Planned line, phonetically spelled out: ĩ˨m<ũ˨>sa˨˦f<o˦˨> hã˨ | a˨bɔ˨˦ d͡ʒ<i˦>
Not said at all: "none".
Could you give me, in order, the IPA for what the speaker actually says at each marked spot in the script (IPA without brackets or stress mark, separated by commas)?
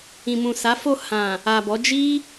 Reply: ũ˨, o˦˨, i˦